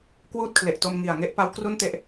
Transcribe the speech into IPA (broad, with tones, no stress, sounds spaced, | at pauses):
k w uː˥˩ t̚ kʰ l e˨˩ ʔ t o˧ m ŋ i˨˩ a̯ ŋ e˦˥ ʔ p a˦˥ w k r u˥˩ n t e˦˥ ʔ